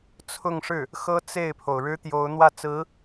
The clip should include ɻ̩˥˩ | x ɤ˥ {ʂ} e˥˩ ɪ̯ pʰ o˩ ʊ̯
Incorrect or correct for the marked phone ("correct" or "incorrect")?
incorrect